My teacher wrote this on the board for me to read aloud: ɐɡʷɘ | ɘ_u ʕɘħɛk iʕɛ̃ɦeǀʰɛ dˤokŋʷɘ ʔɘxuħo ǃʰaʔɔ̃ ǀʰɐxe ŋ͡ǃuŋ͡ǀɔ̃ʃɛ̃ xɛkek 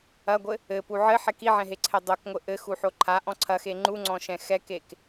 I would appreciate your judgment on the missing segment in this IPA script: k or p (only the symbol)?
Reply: p